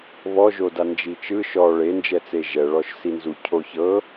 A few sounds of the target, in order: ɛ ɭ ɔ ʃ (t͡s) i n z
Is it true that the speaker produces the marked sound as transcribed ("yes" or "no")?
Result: no